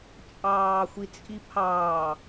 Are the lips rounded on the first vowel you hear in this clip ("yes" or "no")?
no